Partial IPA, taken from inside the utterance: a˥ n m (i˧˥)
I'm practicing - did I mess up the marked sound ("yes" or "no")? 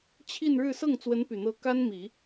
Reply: yes